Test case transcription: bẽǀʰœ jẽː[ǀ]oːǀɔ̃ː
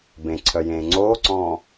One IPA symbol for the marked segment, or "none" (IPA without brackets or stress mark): ŋ͡ǀ